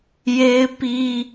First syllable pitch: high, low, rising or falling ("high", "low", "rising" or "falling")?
high